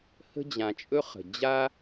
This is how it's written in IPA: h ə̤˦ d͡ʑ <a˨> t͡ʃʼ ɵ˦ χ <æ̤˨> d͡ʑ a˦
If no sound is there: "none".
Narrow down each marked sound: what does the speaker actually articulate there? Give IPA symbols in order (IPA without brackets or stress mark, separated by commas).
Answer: ã˨, ə̤˨